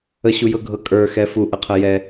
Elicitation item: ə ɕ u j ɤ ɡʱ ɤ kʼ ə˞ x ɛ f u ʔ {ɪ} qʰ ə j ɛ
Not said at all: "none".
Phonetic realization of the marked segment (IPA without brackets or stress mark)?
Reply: ə